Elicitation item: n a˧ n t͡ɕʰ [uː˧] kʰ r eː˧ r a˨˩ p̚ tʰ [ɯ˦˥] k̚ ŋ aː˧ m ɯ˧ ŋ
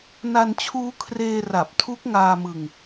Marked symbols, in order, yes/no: no, no

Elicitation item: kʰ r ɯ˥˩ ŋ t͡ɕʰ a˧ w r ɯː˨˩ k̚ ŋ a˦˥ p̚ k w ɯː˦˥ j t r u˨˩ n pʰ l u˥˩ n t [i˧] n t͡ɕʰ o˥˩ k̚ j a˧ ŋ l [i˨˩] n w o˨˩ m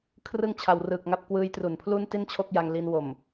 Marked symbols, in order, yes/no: no, no

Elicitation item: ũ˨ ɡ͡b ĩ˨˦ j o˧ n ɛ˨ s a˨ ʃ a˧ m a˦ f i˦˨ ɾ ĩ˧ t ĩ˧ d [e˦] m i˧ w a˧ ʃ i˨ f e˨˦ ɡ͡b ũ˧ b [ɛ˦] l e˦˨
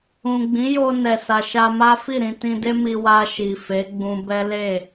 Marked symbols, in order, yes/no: yes, yes

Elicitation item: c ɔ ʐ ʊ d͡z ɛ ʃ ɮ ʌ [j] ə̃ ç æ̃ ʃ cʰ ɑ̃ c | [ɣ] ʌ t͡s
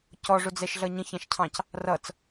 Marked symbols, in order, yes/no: no, no

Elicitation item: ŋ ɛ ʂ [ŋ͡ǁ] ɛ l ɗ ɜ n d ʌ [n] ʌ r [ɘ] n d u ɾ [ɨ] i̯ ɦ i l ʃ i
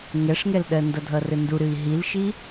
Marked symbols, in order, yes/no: no, no, yes, yes

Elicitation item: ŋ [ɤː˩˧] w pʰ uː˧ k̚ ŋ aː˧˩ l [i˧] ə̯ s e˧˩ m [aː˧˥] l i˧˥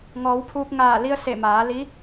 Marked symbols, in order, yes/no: no, yes, no

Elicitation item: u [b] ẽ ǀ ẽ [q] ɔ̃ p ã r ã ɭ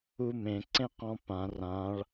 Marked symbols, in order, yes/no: no, yes

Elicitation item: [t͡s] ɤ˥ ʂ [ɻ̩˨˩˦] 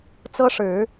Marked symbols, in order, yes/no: yes, yes

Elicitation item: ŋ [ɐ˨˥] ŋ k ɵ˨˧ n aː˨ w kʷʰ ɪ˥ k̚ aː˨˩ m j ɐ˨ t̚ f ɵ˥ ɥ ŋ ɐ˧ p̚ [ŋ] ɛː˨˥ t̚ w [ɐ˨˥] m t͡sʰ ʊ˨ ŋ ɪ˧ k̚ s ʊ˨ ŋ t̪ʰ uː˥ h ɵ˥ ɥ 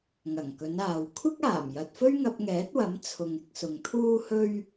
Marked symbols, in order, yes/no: no, yes, yes

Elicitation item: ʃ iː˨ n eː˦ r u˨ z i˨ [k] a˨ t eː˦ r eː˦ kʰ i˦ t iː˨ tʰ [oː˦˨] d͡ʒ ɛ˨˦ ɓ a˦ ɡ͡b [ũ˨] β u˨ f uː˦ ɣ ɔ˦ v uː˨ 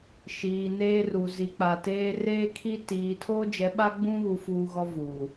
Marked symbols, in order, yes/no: no, no, no

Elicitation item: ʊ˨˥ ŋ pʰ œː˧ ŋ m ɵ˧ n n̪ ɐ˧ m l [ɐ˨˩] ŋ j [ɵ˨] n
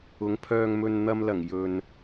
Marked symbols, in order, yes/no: yes, yes

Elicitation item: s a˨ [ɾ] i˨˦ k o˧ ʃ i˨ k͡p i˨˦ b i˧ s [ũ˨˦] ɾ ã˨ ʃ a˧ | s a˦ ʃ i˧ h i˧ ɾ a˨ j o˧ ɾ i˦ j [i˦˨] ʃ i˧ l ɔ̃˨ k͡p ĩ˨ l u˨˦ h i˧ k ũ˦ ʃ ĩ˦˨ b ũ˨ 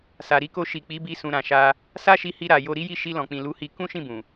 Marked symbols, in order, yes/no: yes, no, yes

